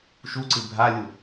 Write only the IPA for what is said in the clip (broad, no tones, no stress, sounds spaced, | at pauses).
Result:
ʃ u ǀ ɨ bʱ a lʲ u